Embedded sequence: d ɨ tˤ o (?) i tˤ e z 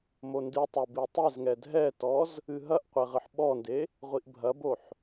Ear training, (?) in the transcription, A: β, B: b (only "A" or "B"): B